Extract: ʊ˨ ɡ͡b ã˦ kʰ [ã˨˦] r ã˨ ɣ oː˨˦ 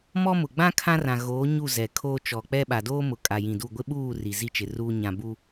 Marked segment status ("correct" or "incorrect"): incorrect